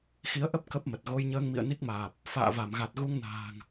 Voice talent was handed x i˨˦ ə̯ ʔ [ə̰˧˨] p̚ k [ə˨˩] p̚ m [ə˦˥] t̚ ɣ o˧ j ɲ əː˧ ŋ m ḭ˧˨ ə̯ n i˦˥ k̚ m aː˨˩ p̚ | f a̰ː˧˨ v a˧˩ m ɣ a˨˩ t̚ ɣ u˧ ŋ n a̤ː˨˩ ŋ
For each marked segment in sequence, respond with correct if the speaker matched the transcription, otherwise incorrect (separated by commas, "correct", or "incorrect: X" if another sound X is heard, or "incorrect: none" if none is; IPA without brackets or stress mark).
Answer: incorrect: ə˦˥, incorrect: ə˦˥, incorrect: ə˨˩